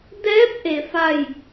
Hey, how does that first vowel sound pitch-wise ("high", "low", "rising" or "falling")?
rising